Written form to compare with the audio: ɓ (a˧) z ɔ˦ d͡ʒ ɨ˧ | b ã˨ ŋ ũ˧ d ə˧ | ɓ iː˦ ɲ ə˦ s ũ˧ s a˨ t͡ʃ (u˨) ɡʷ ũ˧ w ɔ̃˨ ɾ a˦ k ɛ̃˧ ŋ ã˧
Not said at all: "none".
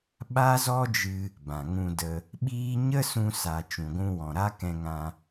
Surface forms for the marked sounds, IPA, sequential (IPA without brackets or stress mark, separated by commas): a˦, ũ˨